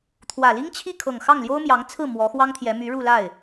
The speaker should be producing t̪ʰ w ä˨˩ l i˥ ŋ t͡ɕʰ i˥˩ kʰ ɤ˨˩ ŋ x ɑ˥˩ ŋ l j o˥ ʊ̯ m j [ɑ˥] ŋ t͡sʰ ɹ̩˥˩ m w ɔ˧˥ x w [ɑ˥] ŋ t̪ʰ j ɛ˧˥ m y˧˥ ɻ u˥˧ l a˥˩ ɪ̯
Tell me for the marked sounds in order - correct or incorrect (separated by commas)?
incorrect, correct